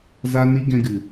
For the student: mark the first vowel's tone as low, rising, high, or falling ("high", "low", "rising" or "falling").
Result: high